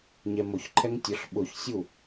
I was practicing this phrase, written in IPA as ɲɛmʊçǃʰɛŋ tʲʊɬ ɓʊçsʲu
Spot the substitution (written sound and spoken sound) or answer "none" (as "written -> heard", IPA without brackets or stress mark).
none